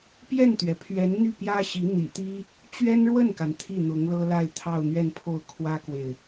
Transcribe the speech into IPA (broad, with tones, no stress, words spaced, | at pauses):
pjɛ˥˩nt̪ɥɛ˩pʰɥɛ˧˥n n̪y˥˩pjä˥ɕi˧˥ n̪ḭ˨˩t̪i˥ | t͡ɕɥɛ˥nɻwə˥˩nka˩n t̪ʰi˥˩n̪ʊ˧˥ŋlɤ˥la˥˧ɪ̯ t̪ʰɑ˥˧ʊ̯n̪ɥɛ˥˧npʰo˥˩ʊ̯ kʰwä˥kwe˨ɪ̯